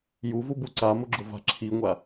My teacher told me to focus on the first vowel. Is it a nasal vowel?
no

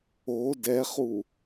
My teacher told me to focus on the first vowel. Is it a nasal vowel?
no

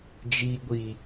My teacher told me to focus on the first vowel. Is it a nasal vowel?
no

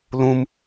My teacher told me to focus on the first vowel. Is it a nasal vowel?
yes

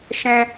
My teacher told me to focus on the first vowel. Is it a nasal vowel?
yes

